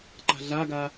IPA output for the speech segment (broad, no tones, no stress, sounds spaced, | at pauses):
ǃ a̤ ɮ a ɡ a